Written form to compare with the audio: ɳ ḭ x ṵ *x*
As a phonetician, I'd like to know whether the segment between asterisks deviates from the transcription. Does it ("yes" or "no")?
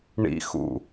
yes